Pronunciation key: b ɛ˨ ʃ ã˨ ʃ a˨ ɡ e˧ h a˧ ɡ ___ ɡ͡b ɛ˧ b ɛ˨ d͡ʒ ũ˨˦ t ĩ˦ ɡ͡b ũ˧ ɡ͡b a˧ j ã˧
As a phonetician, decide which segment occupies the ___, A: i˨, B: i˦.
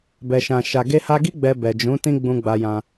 B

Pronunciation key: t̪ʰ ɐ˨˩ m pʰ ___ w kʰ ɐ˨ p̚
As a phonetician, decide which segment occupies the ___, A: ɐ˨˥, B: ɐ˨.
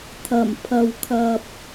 B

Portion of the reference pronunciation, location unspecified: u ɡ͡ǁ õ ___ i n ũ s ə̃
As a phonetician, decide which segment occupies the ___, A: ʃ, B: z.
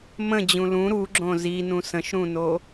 B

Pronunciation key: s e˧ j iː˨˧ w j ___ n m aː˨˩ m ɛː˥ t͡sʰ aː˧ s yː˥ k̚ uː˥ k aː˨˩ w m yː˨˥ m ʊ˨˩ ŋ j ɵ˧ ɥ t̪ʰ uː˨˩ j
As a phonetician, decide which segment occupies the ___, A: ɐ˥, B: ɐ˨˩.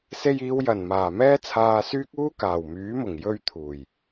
B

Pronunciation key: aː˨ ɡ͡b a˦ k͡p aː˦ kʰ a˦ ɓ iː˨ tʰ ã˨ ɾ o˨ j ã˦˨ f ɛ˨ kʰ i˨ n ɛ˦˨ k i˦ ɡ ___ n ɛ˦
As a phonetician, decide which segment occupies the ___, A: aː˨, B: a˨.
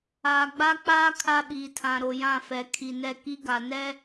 B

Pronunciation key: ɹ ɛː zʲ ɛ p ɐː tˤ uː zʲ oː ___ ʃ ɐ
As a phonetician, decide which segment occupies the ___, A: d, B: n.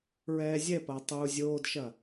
A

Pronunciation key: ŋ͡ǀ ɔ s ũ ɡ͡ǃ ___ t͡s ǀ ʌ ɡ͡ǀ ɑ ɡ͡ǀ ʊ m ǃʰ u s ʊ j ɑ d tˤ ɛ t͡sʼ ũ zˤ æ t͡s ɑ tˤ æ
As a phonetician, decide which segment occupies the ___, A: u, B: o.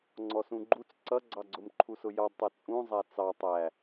A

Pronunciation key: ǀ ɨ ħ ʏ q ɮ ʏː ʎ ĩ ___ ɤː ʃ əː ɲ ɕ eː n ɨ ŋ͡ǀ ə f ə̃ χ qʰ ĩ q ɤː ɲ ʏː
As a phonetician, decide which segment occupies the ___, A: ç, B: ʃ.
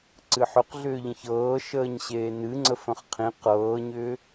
A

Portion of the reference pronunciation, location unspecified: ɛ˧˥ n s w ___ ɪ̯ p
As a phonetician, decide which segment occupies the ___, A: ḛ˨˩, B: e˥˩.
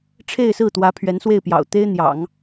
B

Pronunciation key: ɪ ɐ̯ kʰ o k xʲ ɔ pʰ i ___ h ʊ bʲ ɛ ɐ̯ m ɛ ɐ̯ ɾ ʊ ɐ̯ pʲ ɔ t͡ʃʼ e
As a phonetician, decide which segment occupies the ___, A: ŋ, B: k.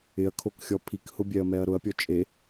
B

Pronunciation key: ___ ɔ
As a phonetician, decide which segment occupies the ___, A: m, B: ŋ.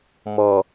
A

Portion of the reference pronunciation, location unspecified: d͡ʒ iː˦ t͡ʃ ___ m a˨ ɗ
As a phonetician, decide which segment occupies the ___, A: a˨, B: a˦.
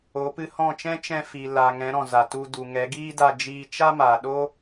B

